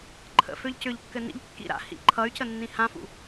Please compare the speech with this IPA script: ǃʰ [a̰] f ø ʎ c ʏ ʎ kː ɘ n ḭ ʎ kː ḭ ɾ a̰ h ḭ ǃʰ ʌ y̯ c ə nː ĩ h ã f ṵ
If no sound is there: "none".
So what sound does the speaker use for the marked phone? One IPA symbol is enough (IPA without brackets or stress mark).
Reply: ə̰